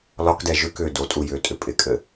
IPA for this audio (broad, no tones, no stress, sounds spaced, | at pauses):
l ɒ k d ɛ ʒ ʏ k ʏː d o tʼ u j ʏː tʼ ʏ pʼ ɪ kʼ ɘ